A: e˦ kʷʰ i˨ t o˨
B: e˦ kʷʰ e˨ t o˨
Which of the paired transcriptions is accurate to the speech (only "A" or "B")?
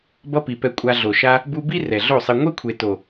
B